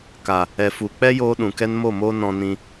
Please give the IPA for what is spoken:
k a˨ | ɛ˨ f u˨ k͡p ɛ˦ j oː˦ ɗ ũ˨ k ɛ˦ n m o˦˨ m o˦ n ɔ̃˧ n ĩ˧

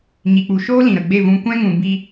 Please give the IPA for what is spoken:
ɲ i˨ k͡p u˨ ʃ oː˦ l ĩ˨ ɾ ə˨ ɡ͡b e˦˨ v ũ˧ kʷ ɛ̃˦ ŋ ũ˨ b i˧

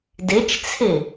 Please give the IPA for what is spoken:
d i t͡ʃ t͡sʰ i

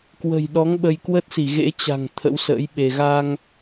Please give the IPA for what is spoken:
k w ə̤˨˩ j ɗ ɔ˨˦ ŋ ɓ ə˧ j k w ə˦˥ t̚ s i˧˩ ɣ ḛ˧˥ t͡ɕ a̤˨˩ ŋ t̪ʰ ə̰˧˥ w s ə̰ː˧˥ j ɓ e˧ ɣ a˧ ŋ

